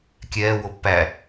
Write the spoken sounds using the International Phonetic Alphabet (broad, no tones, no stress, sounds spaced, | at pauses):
kʲ ɛː w o pː æ